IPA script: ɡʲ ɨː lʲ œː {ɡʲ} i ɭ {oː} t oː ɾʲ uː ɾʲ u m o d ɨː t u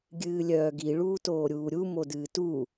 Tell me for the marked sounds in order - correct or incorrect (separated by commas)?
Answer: incorrect, incorrect